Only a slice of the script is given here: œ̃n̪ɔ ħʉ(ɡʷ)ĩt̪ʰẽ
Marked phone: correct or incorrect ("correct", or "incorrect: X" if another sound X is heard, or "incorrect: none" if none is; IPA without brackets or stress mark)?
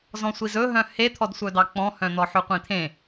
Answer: incorrect: qʷ